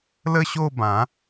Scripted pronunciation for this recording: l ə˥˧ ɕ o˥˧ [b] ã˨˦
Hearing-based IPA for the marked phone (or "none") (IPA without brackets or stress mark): b